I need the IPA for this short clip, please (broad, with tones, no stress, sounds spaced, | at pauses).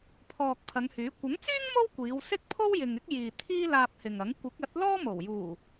pʰ ɔː˨ k̚ pʰ ɐ˨˧ ŋ h yː˨˥ kʷ ɐ˨˥ ŋ t͡s yː˥ ŋ m o˥ w kʷ iː˨˧ w s ɪ˥ k̚ pʰ o˥ w j ɪ˨ ŋ ɪ˥ k̚ j iː˨ t̪ʰ iː˥ l aː˧ p̚ h ɪ˨ ŋ ɐ˨˥ ŋ kʷ ɪ˨˥ k̚ ɐ˨˥ t̚ l ɔː˥ m o˨˩ w j uː˨˩